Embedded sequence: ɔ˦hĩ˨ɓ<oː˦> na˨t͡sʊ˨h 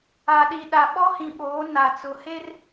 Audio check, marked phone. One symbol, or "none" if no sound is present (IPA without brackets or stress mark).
oː˨˦